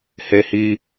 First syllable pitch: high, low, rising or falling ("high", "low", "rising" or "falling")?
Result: high